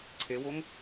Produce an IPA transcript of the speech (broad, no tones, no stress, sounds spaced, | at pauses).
ǀʰ e w o ŋ